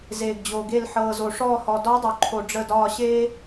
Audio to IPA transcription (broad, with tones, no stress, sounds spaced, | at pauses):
z eː˩ ɡ d͡ʑ o˩ ɡ e˧˩ l ħ ɤː˩ z o˩ ʂ ɔː˧˩ h ɔ˩ d ɒ˧˥ dˤ o˩ ǃʰ o˩ ɖ͡ʐ ə˧˩ d ɒː˧˩ ɕ eː˥